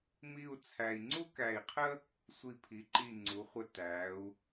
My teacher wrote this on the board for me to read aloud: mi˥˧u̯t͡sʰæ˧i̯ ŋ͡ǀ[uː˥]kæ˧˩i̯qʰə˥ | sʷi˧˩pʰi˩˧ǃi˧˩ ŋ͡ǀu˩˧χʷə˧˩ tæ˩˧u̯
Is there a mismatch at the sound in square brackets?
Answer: yes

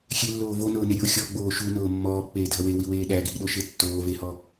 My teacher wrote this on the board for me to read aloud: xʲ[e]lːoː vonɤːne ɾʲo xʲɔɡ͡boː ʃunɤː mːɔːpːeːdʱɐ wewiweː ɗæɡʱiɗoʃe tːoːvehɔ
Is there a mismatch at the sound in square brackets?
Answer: no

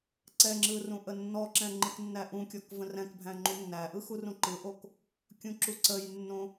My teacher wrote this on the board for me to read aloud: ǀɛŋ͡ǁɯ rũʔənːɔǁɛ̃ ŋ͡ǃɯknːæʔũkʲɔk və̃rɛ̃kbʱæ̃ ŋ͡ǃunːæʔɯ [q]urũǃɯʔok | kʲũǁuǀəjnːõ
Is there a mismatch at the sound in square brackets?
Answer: yes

